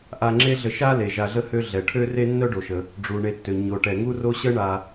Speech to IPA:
ʔa˨ŋ͡ǁe˦ɮə˨ ʃa˥ le˩ʒa˨ɮə˥hø˦ ɮɛ˩ʈʰø˥re˥ nːœ˥ɖo˩ʃə˩ | ɖ͡ʐu˩ɳe˨tːø˩ ɲo˩ ʈɛ˩ŋu˦ro˦ ɕə˦ɳa˨

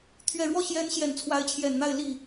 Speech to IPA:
t̪ʰɥɛ˨˩ɻwɔ˥˩ ɕjɛ˧˥n ɕjɛ˨˩nt͡sʰwa˧˥ɪ̯t͡ɕʰjɛ˨˩nn̪a˥˧ɪ̯ li˥˩

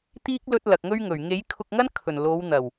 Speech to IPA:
t̪iː˥k̚ lɵ˥t̚lɐ˨k̚ŋɵ˥ɥŋɵ˨˩ɥ ŋe˨˥j kʰʊ˧k̚ŋɐ˥n kʰɵ˨˩nlo˨˧w n̪ɐ˨˩w

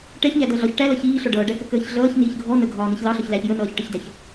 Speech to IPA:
ʈɛçɲædʌ ɮɒç ʈælʌ çiːɬɔ ɖʌːɖækəkəːç ɮʌːçniːç ɡʱɔ nəɡʱɒːniç lɑɬɒçlæç jənʌːçʈəçdæç

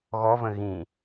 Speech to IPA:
ɣɔvə̃ ɣĩ

